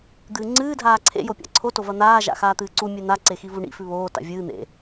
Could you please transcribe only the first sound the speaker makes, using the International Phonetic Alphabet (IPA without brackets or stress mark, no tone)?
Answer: d̪